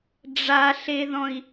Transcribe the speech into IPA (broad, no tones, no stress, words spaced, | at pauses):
ɖ͡ʐaɬeðɔ̃i̯